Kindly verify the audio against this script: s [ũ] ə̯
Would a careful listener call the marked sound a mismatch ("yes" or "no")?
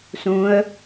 no